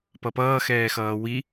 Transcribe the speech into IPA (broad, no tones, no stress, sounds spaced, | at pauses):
p ʌ p ʌː x ɛː x ʌː w i